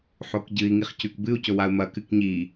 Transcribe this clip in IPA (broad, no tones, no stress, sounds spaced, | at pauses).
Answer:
ħ o k ɟ ɨ i̯ ŋ i χ c ʉ k b ɨ u̯ c ɵ w a u̯ m ɐ k ɨ k ɲ i